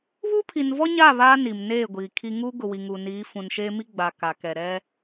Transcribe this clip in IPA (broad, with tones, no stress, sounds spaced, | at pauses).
β uː˦ pʰ i˨ n v ɔ˦ ɲ aː˦˨ β aː˦ n i˨ m n eː˦˨ ɡʷ iː˨ kʰ i˦ ŋ uː˦ ɡ ʊ˨ w i˨ ŋ uː˨ n iː˨˦ f ũ˨ n ʃ eː˦ m i˦ ɡ͡b a˨ k a˨ k ɛ˨ ɾ ɛ˦